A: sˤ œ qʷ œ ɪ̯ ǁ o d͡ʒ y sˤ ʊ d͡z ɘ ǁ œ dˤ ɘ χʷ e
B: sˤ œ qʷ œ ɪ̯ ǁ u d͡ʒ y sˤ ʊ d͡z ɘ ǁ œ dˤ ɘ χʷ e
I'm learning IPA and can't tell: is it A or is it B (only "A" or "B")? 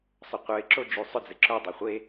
A